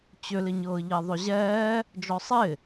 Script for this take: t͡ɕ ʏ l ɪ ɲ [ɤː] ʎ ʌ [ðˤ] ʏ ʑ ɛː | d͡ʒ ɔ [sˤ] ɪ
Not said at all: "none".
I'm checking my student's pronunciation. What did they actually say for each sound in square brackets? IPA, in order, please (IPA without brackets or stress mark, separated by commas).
ɤː, ðˤ, sˤ